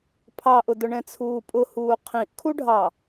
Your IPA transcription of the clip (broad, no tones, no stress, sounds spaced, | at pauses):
pʰ ɑ ʔ ʊ d ʊ ɳ ɛ̃ t͡sʰ uː pʼ ʊ h uː qʰ ĩ ʔ kʰ u ɖʱ ɑ